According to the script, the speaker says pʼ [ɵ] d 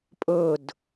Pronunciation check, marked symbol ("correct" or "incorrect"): correct